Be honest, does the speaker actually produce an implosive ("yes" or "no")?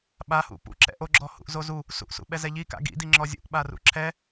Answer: yes